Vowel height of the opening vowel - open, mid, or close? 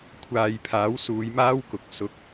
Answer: open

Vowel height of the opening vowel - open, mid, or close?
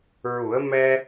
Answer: close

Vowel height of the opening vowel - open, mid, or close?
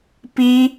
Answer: close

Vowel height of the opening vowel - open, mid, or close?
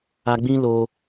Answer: open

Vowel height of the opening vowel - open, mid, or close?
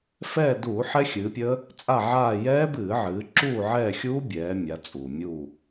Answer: mid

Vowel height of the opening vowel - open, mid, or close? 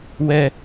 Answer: mid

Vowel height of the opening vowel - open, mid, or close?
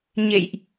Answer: mid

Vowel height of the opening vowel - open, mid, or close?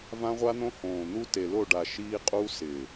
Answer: open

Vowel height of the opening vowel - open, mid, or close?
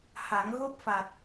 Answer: open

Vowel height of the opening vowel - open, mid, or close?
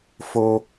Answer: mid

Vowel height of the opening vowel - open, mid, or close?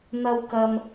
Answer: open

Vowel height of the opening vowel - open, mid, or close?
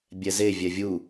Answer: mid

